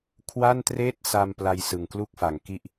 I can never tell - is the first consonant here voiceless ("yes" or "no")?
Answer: yes